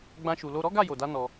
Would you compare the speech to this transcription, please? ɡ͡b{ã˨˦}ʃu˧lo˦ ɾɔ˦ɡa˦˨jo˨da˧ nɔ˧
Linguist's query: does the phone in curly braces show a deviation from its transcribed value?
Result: yes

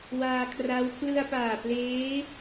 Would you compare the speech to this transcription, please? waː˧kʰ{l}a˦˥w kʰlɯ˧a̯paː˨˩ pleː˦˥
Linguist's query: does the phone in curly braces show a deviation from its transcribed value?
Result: yes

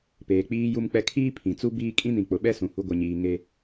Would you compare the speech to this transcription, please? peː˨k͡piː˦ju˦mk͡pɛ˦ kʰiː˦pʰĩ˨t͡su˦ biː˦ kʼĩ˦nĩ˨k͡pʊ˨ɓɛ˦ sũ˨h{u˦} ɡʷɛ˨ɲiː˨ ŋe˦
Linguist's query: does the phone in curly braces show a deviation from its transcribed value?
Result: no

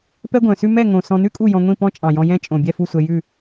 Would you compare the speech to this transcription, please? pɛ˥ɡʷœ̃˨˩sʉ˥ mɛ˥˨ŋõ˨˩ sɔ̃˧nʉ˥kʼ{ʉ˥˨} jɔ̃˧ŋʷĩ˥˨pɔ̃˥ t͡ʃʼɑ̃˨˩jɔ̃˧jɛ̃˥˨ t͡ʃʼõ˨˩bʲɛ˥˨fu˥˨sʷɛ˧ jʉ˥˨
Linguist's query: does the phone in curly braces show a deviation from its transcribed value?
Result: yes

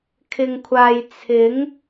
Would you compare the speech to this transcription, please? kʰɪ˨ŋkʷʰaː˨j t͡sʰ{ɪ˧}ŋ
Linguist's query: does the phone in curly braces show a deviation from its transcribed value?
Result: yes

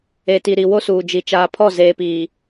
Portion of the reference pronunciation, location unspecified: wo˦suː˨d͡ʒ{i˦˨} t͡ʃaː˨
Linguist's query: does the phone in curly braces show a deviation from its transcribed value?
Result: yes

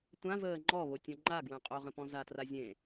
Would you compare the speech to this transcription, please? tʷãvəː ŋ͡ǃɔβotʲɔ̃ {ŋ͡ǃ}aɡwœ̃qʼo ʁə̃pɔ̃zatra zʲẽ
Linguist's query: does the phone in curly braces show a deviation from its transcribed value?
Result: no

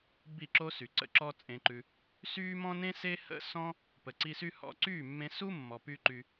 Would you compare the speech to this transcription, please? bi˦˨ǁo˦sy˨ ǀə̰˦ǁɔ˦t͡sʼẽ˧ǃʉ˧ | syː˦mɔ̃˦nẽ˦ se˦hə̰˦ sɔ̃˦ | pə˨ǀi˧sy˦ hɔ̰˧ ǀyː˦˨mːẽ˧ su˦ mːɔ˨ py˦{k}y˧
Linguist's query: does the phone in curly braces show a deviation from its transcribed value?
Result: yes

